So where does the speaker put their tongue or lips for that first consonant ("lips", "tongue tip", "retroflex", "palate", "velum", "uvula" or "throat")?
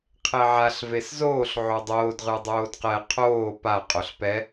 uvula